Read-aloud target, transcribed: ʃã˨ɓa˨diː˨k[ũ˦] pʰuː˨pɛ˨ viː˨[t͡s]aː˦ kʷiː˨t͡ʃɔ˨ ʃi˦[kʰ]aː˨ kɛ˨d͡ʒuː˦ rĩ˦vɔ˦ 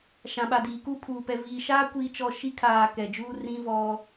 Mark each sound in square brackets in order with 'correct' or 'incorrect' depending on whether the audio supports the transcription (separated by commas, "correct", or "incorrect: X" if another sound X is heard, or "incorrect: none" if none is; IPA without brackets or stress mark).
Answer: incorrect: u˦, incorrect: ʃ, correct